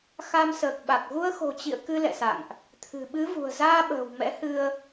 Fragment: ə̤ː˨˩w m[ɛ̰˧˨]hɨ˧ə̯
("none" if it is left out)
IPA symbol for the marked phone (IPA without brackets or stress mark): ɛ̰˧˥